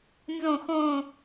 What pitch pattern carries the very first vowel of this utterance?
falling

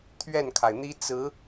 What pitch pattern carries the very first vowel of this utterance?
falling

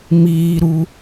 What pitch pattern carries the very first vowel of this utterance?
low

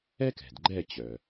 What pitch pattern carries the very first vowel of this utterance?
high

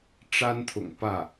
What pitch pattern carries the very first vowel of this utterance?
high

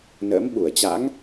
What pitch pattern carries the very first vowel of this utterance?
rising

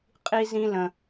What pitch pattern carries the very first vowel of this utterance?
high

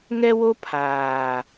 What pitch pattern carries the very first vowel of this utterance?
high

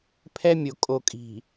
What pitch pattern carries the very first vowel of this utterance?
high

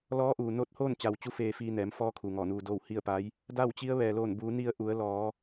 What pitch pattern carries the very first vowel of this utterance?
rising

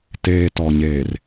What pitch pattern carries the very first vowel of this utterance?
low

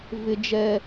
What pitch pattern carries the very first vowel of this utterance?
high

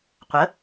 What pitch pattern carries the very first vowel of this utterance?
rising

